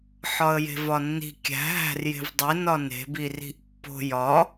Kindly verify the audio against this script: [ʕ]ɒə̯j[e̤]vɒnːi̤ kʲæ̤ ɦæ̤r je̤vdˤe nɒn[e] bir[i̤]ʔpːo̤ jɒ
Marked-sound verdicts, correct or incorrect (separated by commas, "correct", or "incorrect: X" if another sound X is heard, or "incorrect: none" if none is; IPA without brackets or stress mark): incorrect: ħ, correct, incorrect: e̤, correct